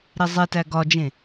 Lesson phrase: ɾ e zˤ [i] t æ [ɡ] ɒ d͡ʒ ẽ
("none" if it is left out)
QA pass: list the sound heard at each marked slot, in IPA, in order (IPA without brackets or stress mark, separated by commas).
e, ɡ